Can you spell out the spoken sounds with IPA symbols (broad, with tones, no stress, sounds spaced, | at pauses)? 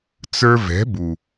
t͡s ə˞˧ v ɛ̤˨˦ b u˨